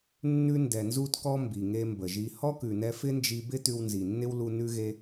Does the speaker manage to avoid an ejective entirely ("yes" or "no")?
yes